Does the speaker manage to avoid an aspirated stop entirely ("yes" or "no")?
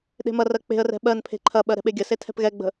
no